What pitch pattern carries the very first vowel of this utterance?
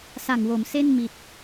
low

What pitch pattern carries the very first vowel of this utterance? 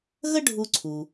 high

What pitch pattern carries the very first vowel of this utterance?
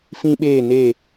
high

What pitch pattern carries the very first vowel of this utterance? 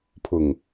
low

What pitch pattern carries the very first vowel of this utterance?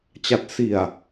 low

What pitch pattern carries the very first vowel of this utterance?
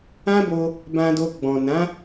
high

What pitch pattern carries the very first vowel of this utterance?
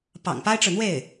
low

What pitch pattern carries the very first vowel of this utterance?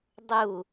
falling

